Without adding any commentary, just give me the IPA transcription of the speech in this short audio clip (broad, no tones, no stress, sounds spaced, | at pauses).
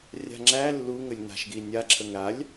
rʲ a̤ ŋ͡ǁ æ lː u ŋ ə lʲ n a̤ ʃ ɡ i nʲ a ǁʰ ə ŋ ɾ a lʲ